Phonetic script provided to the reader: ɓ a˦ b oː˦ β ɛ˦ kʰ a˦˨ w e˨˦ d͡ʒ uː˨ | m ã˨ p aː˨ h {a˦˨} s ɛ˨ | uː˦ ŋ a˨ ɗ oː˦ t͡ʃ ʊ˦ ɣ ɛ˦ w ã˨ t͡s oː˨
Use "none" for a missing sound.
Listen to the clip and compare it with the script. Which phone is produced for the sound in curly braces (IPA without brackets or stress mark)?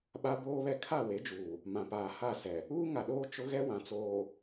a˦˨